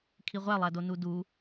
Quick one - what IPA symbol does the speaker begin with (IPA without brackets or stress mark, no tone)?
kʰ